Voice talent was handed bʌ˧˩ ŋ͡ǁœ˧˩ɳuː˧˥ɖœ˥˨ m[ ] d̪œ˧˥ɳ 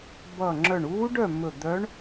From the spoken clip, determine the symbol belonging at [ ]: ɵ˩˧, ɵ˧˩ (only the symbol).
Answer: ɵ˧˩